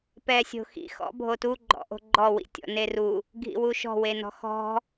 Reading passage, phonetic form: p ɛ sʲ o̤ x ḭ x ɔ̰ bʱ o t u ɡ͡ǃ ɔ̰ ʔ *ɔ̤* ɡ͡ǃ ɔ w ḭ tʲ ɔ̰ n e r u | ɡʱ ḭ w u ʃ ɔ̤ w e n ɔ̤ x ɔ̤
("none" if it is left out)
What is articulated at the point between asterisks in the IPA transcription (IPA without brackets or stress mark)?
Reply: o̤